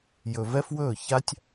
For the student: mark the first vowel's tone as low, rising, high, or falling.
low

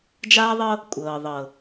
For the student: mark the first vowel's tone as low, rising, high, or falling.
high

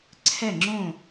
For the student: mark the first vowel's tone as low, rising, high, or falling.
falling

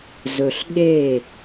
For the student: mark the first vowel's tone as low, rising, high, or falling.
low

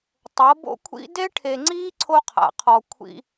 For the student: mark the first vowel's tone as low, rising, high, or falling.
rising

